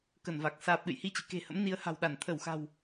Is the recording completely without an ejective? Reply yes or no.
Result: yes